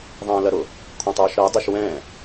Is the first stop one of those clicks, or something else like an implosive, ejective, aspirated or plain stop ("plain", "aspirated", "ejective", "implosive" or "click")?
aspirated